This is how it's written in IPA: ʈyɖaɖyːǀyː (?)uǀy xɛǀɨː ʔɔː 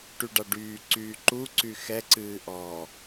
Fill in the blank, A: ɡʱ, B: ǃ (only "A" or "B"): B